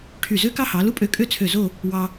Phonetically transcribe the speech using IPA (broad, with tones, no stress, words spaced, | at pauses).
ʈʰy˧˩zø˥ kɑ˥hɑ˩˧lu˥ pʼø˧kʼø˥˧ t͡sʰø˧˩zo˥˧ | wɑ˧